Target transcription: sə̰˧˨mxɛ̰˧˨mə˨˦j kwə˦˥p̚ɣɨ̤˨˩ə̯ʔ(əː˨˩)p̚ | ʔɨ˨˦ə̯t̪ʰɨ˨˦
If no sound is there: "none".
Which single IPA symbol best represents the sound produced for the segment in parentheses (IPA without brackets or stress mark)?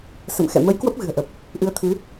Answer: ə˨˩